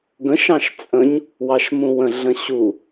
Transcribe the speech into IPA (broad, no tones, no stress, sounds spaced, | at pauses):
ɡ ə̃ ʃ ɑ̃ ʃ t͡sʼ ə̃ ɲ | w ɑ ʃ m ũ w ə̃ ɮ ə̃ ɕ u